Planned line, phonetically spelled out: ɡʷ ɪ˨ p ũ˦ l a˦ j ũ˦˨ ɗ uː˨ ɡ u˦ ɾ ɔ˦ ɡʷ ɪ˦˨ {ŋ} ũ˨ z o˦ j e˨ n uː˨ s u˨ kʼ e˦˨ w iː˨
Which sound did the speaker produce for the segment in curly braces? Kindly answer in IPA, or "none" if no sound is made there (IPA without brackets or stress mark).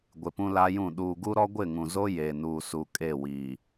ŋ